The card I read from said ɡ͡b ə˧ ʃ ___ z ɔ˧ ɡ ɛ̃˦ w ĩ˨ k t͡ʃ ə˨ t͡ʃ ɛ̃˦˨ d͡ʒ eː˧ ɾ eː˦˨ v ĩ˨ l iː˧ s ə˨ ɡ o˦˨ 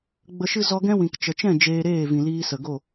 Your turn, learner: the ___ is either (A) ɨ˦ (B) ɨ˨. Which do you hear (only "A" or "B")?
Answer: A